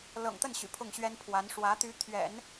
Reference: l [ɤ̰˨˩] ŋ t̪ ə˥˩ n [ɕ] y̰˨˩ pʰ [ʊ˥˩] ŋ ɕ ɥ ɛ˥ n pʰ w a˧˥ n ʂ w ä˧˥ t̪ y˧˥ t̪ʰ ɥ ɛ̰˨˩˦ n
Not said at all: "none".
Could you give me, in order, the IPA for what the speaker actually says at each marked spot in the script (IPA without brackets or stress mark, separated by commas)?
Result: ɤ̰˨˩, ɕ, ʊ˥˩